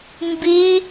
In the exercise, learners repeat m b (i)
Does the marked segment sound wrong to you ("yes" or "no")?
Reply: no